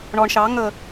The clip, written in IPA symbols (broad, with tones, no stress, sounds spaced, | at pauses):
ɳ ɔ˨ ɳ ʃ ɑ˨˦ ŋ ə˨